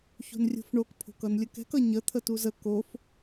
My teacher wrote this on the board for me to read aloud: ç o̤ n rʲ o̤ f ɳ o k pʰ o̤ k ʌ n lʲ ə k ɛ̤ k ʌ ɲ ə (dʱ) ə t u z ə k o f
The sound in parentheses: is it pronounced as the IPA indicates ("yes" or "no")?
no